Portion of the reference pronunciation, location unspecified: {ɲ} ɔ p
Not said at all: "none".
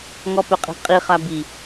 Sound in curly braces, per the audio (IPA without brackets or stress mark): ŋ